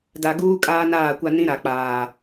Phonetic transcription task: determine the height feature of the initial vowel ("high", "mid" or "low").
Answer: low